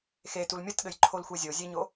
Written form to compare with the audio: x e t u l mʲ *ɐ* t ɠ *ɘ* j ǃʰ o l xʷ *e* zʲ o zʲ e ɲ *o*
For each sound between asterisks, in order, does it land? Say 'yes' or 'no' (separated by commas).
yes, yes, yes, yes